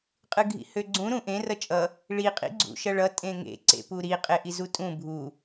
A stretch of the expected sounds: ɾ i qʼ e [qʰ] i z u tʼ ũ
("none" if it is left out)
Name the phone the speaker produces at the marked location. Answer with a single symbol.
ʔ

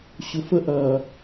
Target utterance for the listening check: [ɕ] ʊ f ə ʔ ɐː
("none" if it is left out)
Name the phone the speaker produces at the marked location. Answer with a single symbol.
ɕ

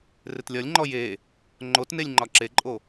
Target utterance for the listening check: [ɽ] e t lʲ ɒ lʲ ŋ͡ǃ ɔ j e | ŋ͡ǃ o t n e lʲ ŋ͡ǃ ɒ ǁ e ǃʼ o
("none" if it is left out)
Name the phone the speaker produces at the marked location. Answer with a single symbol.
r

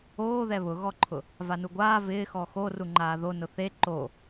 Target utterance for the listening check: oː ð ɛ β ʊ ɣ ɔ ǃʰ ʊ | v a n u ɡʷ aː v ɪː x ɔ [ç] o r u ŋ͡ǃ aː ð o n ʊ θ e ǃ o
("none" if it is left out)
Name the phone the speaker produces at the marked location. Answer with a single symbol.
x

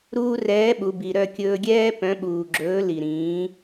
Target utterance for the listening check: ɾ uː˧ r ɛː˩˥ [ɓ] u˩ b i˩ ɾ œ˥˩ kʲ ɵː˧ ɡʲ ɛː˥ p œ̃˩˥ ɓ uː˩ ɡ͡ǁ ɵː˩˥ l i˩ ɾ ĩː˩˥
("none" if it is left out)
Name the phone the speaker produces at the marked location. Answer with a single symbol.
ɓ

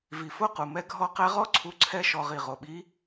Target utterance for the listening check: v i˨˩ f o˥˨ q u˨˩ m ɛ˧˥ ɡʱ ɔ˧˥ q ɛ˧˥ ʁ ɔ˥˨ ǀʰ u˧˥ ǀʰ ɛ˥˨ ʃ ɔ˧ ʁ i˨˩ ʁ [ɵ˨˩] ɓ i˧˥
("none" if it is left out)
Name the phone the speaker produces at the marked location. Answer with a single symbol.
o˨˩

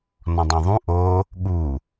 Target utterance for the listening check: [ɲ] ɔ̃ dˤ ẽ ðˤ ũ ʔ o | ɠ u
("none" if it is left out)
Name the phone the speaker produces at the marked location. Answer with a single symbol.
n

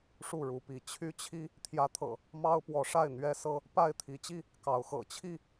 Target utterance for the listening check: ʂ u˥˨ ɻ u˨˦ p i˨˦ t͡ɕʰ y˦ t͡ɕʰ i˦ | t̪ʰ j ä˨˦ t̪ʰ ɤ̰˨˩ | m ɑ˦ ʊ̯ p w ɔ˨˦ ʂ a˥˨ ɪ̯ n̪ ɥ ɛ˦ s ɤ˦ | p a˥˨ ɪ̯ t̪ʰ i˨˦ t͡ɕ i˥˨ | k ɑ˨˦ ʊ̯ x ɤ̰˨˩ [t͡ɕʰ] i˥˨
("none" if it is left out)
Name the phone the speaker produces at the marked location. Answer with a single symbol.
t͡ɕʰ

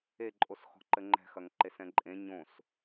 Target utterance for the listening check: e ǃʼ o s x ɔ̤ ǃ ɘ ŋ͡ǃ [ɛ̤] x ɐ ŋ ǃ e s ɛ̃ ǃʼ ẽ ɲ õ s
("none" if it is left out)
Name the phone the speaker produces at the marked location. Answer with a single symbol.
ɛ̤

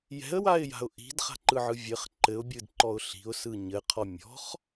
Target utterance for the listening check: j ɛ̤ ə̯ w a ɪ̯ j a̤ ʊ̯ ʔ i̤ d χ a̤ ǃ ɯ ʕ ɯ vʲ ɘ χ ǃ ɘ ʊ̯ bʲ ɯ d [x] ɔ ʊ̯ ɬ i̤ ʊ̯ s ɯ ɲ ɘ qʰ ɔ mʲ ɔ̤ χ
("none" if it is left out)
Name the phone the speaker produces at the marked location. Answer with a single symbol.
ǃ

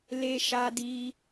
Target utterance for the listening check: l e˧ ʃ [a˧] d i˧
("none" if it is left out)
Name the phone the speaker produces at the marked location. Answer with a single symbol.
a˧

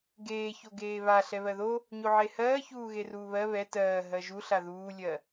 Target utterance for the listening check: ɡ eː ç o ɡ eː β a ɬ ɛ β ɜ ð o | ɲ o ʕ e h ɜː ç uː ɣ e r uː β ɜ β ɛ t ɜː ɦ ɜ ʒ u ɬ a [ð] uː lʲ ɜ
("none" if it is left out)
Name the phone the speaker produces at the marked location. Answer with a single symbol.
ð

